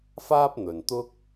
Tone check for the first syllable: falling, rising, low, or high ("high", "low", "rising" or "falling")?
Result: high